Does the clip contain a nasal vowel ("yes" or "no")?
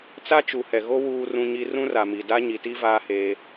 yes